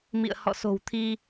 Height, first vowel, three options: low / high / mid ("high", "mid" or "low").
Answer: high